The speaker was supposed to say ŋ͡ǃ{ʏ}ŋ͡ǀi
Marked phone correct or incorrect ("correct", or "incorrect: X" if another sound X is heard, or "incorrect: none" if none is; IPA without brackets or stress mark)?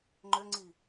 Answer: correct